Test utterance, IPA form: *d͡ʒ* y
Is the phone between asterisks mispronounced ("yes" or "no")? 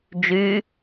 no